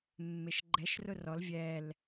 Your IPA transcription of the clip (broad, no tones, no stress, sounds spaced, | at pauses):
mː e ʃ ɡ͡ǃ ɛ ʃ r ʊ r ɔ l vʲ ɛ l